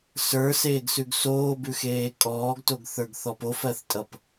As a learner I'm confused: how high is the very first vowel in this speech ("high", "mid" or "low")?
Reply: mid